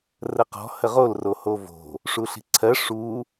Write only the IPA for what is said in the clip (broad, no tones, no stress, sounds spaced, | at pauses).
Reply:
r ə q ɔ̤ h ə ʁ o l r o h o v o̤ | ʂ u ɬ i̤ ǀʰ ɜ ʂ u